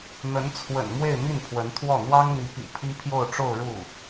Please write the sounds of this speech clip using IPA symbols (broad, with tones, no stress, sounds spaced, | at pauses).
n̪ ə˧˥ n t͡sʰ w ə̰˨˩ n m w e˥˧ ɪ̯ m i˥˩ n pʰ w ə˧˥ n t̪ʰ w ɔ˥˩ n̪ w ɑ˥ ŋ n̪ i˧˥ p ḭ˨˩ pʰ i˥ pʰ j o˥˧ ʊ̯ ʈ͡ʂ o˥˧ ʊ̯ ɻ u˥˩